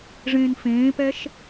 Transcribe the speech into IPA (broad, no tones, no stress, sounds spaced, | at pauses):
ʐ ẽː n f ẽː p ɛ ʃ